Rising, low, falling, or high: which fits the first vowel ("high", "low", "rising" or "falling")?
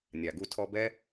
low